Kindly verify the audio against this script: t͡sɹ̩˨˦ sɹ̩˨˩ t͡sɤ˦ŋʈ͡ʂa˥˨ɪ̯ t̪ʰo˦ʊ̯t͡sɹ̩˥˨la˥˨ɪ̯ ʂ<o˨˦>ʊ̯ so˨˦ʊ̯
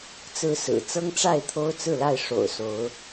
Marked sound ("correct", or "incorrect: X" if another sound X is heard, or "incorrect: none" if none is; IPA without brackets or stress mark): incorrect: o̰˨˩